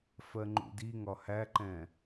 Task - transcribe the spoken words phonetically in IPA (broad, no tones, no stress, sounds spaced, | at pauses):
f ɜ ŋ͡ǃ ṵ d i ŋ ɒ h æ ǃ ɛ̃